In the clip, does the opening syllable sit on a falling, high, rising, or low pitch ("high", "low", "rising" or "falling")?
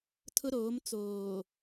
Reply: high